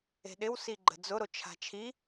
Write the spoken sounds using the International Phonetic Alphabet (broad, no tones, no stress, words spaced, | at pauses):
e̤ɗɪw siɡ͡ǃə̤d͡zʊɾo t͡ʃʰa̤t͡ʃʰi